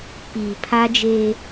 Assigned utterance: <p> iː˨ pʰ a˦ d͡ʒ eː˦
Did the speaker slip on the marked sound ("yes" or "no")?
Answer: no